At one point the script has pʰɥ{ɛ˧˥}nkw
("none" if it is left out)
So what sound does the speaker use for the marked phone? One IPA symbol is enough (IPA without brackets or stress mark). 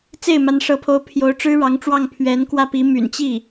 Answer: ɛ˧˥